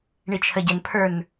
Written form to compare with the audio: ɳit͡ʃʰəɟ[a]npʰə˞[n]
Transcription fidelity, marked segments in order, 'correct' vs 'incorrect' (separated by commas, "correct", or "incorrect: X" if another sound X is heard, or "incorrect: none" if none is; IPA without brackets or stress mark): incorrect: ə, correct